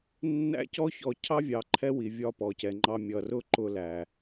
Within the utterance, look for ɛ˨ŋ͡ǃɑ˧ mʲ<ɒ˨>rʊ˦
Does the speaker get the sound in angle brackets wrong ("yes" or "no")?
yes